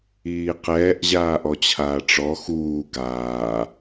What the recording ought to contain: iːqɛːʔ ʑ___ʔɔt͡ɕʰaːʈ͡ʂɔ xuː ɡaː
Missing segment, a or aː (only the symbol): aː